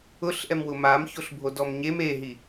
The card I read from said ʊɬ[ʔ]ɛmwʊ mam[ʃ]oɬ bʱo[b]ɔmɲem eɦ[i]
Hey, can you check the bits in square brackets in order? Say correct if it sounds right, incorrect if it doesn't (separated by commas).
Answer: correct, incorrect, incorrect, correct